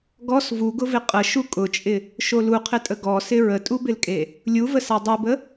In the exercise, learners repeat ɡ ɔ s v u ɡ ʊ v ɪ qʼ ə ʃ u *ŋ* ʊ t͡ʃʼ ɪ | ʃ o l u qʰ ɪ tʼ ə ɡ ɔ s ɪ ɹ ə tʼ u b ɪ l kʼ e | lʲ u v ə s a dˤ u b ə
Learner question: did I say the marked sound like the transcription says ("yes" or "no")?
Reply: no